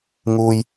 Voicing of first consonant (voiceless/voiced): voiced